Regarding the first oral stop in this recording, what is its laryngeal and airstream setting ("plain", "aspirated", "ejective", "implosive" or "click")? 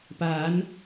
plain